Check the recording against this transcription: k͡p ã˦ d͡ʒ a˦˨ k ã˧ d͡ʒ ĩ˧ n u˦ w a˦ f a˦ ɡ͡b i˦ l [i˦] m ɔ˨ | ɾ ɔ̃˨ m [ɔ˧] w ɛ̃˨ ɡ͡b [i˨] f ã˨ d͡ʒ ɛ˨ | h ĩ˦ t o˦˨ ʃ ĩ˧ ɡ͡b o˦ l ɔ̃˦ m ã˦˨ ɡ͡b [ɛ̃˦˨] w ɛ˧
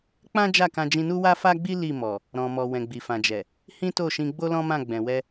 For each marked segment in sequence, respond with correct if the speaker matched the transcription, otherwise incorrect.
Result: incorrect, incorrect, correct, incorrect

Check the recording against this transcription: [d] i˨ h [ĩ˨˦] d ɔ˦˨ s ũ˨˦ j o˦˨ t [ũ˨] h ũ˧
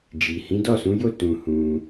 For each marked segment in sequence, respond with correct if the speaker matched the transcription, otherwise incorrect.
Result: incorrect, correct, incorrect

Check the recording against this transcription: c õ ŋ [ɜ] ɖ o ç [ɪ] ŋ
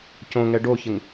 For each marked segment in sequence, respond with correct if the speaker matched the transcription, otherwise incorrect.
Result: incorrect, correct

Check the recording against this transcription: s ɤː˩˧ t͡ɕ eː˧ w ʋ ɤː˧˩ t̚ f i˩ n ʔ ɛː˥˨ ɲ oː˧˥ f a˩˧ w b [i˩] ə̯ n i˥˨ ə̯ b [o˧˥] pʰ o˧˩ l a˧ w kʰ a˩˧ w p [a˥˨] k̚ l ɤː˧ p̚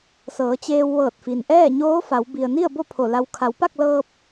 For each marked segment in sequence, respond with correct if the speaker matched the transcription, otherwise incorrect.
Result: correct, incorrect, correct

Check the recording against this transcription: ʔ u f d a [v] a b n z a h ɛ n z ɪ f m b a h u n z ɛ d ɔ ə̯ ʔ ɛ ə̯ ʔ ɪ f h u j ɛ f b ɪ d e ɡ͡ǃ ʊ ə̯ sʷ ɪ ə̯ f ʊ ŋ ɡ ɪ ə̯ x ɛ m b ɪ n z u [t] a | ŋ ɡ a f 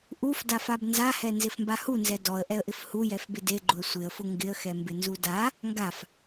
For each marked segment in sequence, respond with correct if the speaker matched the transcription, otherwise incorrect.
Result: incorrect, incorrect

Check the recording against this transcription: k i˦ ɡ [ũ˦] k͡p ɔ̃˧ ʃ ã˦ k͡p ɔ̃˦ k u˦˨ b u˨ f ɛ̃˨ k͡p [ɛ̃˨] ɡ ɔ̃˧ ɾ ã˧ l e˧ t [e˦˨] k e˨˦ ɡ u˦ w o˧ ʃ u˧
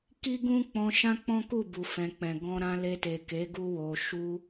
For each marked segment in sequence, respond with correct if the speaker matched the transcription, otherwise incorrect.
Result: correct, correct, incorrect

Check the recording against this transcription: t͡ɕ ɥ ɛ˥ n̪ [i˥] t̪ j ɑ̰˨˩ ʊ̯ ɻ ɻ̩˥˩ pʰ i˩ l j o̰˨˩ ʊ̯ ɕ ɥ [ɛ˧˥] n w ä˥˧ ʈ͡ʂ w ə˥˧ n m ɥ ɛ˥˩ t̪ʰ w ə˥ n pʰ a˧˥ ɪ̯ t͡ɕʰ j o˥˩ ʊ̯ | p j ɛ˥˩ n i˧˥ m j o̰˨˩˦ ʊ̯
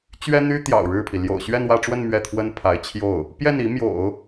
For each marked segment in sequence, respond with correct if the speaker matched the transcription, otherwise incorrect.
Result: incorrect, incorrect

